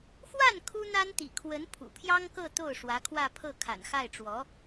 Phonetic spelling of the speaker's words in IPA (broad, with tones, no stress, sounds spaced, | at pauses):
x w a˥˩ n kʰ u˥ n̪ a˥ n t̪ ḭ˨˩ kʰ w ə˧˥ n pʰ ṵ˨˩ pʰ j ɑ˥ ŋ k ɤ˥˧ t̪ o˥˩ ʊ̯ ʂ w ä˧˥ kʰ w ä˥˧ pʰ ɤ˥˩ kʰ a̰˨˩ n x a˥˩ ɪ̯ ʈ͡ʂ w ɔ˧˥